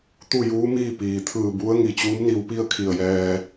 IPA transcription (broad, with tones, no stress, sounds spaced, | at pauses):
t̪ u˥˨ j uː˧˥ m iː˥˨ p iː˩ t̪ʰ ɯː˧˩ b u˧˥ ə̯ ŋ i˧˩ t͡ɕ uː˧˥ m n i˧ w p i˥˨ ə̯ kʰ i˧˩ ə̯ j ɛː˧